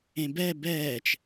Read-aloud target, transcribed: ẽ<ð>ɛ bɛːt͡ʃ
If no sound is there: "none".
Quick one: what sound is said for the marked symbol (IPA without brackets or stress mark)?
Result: b